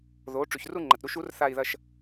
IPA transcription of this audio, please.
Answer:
ð o˨˥ ʈ͡ʂ ʉ˨ ç r u˥˧ ŋ͡ǃ ɐ˨ t ɾ u˥˧ ʃ u˨˥ r θ a˥˧ i̯ ð ɐ˥˧ ʃ

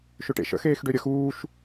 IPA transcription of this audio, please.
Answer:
ʃ ʏ ʈ ḛ ʃ ə̰ x eː x ɖ ø ɾʲ ə x uː ʃ

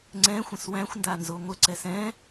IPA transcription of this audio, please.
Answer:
ŋ͡ǀ ɛ̃ xʷ ə̃ s w æ̃ xʷ n d a n z o ŋʷ ə ǀ ɛ s ɛ̃

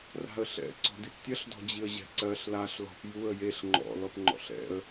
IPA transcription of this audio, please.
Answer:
r a̤ ə̯ ɬ ɛ̰ ǀ ɔ̤ d i p tʲ ɐ ɬ d ɔ̤ d͡ʑ i ə̯ ʑ ɛ̤ ǀ ɜ ɬ l a ɬ l ɔ̤ p j u ə̯ j e ɬ ŋ͡ǃ ɔ̰ l ɔ p ŋ͡ǃ ɔ̰ ɬ ɛ̰ ə̯

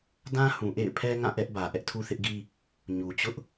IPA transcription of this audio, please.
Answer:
d ã˦ h ũ˨ ʔ ḛ˦˨ ɪ̯ pʰ ɛ˦ ŋ ã˦˨ ʔ ɛ˦ ʔ b ä˨ ʔ ɛ˦ ʔ tʰ u˦ θ ɪ˦ ʔ ɡ i˦ | ɲ u˨ t͡ɕ ʊ˦ ʔ

